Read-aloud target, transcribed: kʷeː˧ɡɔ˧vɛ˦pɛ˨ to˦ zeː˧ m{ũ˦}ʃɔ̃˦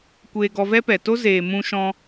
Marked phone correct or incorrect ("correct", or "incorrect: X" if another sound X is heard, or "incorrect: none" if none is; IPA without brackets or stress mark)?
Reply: correct